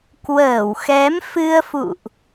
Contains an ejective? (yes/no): no